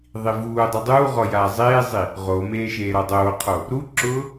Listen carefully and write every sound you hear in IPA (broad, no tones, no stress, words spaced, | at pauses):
ðˤivuːdˤi dˤuːʁɔ jaːzˤeːzˤi | ʁomeː ʃeːɾɔdˤoːqʰo | ɾuǁʊː